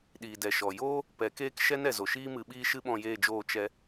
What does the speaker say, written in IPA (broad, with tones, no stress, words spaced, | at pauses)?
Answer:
ɗiː˨dɛ˨ʃɔ˨ joː˦ | pɛ˨˦keː˦k ʃɛ˦nɛ˨zo˨ʃiː˦ mɨ˧ɓiː˦ʃɨ˦ ɓɔ̃˦˨jeː˦˨d͡ʒoː˦˨ t͡ʃɛ˦